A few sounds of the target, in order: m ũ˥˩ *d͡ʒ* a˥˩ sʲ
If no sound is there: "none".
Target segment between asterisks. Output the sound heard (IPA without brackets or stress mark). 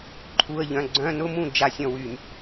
d͡ʒ